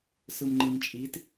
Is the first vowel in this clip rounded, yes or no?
no